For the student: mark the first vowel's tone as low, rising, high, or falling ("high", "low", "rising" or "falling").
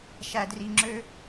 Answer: low